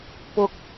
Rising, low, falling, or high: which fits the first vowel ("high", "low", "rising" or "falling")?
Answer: high